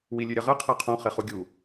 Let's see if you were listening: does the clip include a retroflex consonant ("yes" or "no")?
no